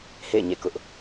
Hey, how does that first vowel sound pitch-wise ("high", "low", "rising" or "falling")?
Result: falling